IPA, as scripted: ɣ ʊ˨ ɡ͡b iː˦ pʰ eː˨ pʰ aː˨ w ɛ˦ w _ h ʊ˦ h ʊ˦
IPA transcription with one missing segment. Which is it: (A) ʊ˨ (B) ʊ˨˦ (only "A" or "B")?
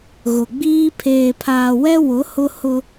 B